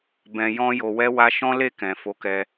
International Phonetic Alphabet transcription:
b ɛ̃˨ j ɔ̃˧ j o˨ w ɛ˧ w a˧ ʃ ɔ̃˦ l e˦˨ k ɛ̃˨ f o˨˦ k ɛ˧

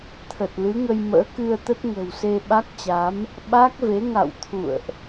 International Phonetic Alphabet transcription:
t̪ʰ ə˨˩ t̚ l ɨ˨˦ ŋ ə˧ j m ə̰ː˧˥ k ɨ˧ ə̯ t̪ ə˦˥ t̚ ŋ ə̤˨˩ w s e˧ ɓ a˦˥ k̚ t͡ɕ a˨˦ m | ɓ a˦˥ k̚ v e˨˦ ŋ a̰˧˨ w t̪ʰ ṵ˧˨ ə̯ ʔ

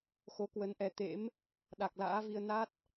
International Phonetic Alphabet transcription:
x o˨˦ k w ə˨˦ n ʔ ɛ˨˦ t̪ ḛ˧˥ m | ɗ a˨˩ k̚ l a̰ː˧˥ v i˧ ə̯ n a˦˥ t̚

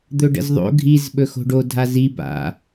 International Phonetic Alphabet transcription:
d̪ ɵ ɖ ə̰ z ðˤ o̰ ɡʱ i z ɓ ɵ x o̤ ɖ o dʱ a z i b a̰

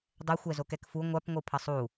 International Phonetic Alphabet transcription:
dˤ ɛ xʷ ɛ z o k ɛ k f u ŋʷ a p ŋʷ ɯ pʰ ʌ sˤ u

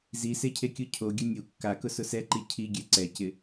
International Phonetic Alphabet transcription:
z i s e cʰ e kʲ u cʰ o ɡʲ ʊ nʲ u kː a k ʊ s ʊ s ɛ ǃ i cʰ i ɡʲ ɛ ǀ ɛ c ɪ

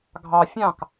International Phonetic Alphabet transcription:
ɡʱ ɑ fʲ ɑ̃ k

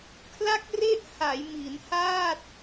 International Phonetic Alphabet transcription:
kʰ l a˥˩ k̚ r e˥˩ ʔ h a˩˦ j m i˩˦ n h a˥˩ t̚

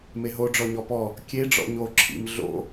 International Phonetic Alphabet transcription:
m e ɦ o ɖ͡ʐ ɔ ɲ ɔ p ɔ | kʲ e ɖ͡ʐ ɔ̰ ɲ o ǁʰ ḭ m ɮ o̰

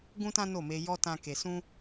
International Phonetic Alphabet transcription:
ɡ ũ˦ t ã˦ n o˦˨ m e˧ j ɔ˦ t ã˦ k e˧ s ũ˦

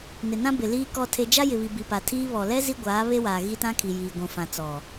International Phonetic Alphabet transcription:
n ɪ˨ n ã˦ b ɪ˨ l iː˦ k ɔ˦ tʰ e˦ d͡ʒ a˦ j ɪ˨ β i˨ b i˨ p a˨ tʰ iː˦ β ɔ˨ l ɛ˦ z i˦ ɡʷ aː˨˦ β e˦ w aː˨ ɣ i˦ t ã˦ kʰ i˨ j iː˨ ɡʷ ũ˨ f ã˨ t͡s ɔ˨

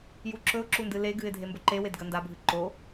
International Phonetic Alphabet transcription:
j u ǁ ɵ ʊ̯ ǁ u n d ɨ l e ɡ ɨ ɪ̯ dʱ e m b ɵ ǃ e w e d ɡ ɐ n d a bʱ ɨ ǃ o

